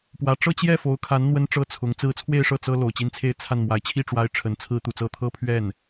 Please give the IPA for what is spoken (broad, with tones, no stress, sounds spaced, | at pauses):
p w ä˧˥ ʈ͡ʂ ɤ˥˧ t͡ɕ j ɛ˥˩ f o˧˥ ʊ̯ kʰ a˧˥ n n̪ w ə˥ n ʈ͡ʂ ɤ˥˩ t͡sʰ ʊ˧˥ ŋ t͡s ɹ̩˥˧ t͡sʰ w e˥˧ ɪ̯ ʂ ɤ˥˩ t͡s ɤ˥ l o˨˩ ʊ̯ t͡ɕ i˥ n t͡sʰ e˥˧ ɪ̯ t͡sʰ a˥˩ n m w a˧˥ ɪ̯ t͡ɕʰ i˥˩ ʈ͡ʂ w a˥ ɪ̯ ʈ͡ʂʰ ə˧˥ n t͡sʰ ɹ̩˥ t̪ u˨˩ t͡s ɤ˥˧ t̪ʰ ɤ˥˧ pʰ ɥ ɛ˥˩ n